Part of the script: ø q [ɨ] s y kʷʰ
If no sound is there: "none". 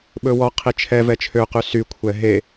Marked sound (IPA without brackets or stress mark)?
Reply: y